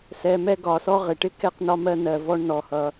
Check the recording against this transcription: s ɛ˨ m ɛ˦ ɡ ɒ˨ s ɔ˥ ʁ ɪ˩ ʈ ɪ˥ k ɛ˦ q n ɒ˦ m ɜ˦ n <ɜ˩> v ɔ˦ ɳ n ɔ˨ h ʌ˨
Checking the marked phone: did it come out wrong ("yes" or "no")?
yes